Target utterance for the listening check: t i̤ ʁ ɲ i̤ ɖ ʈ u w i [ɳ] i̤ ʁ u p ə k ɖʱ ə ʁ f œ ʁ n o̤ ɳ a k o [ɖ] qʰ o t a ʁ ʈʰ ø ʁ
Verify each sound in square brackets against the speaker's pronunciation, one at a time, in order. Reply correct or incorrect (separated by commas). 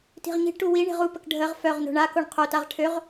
correct, incorrect